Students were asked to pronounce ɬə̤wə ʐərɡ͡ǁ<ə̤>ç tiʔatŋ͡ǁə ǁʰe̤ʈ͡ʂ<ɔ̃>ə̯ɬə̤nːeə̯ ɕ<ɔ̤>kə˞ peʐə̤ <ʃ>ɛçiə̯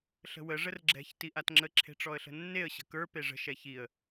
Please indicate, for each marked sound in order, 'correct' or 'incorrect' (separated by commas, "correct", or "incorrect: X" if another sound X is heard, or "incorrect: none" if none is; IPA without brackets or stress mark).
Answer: incorrect: ɛ̤, incorrect: ɔ, incorrect: ə̤, correct